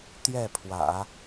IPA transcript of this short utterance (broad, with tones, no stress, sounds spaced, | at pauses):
t̪ j ɛ˥˩ pʰ w ä̰˨˩˦